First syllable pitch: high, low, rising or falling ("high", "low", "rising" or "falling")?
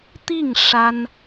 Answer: falling